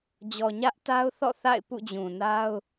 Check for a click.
absent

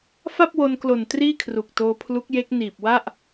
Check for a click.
absent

